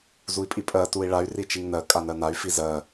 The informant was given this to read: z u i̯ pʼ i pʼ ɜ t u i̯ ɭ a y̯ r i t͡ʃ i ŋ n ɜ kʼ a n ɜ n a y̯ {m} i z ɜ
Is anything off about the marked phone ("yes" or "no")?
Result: yes